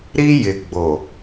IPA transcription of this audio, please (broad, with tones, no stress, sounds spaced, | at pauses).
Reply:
ɾ i˦ j ɪ˨ ɡ͡b o˨